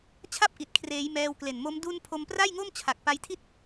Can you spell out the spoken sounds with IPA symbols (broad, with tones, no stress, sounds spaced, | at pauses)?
t͡ɕʰ a˥˩ p̚ ʔ i˨˩ t̚ kʰ r eː˩˦ j m ɛː˧ w k l e˨˩ n m o˦˥ m d u˧ n pʰ o˧ m p r a˥˩ j ŋ o˥˩ m t͡ɕʰ a˨˩ k̚ p a˧ j tʰ i˥˩ t̚